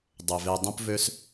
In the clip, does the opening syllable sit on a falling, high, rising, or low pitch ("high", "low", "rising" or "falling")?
low